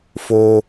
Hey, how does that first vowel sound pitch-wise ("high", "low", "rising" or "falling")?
high